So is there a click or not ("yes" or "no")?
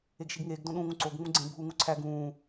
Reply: yes